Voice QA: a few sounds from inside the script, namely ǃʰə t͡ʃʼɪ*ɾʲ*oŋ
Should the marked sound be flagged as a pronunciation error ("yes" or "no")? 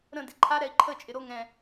yes